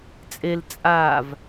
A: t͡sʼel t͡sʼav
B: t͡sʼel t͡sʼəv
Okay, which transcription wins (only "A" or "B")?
A